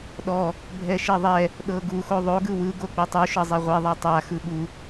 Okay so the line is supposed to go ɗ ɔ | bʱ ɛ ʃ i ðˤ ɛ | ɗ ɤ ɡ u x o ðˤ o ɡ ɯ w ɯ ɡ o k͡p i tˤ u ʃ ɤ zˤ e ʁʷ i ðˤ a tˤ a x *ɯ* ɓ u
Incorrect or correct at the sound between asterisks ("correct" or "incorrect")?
correct